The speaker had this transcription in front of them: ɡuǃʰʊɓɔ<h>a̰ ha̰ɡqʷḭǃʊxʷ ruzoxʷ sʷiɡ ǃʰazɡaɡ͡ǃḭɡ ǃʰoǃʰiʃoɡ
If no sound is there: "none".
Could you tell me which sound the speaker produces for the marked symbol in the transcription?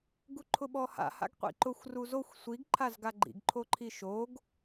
h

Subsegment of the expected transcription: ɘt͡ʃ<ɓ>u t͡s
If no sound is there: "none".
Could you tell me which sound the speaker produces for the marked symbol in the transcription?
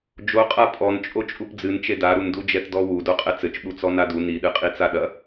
ɓ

